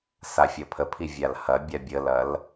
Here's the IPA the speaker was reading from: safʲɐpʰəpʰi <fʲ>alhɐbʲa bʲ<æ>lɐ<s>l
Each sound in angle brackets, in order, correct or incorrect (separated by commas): incorrect, incorrect, incorrect